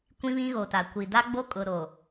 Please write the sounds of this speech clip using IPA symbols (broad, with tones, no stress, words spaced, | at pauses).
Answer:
kʷĩ˦βĩ˦ɣo˨ta˨ kʷi˨ da˦ɡ͡bo˦ kʼʊ˨ɾo˨